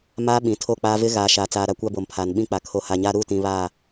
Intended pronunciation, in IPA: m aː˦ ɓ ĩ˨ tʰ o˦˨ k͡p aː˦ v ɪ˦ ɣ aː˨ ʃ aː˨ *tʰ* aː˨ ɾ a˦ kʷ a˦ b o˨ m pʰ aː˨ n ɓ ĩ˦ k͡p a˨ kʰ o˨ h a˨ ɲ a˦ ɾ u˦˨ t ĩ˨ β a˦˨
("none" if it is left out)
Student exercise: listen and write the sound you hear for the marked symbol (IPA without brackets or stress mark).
t͡s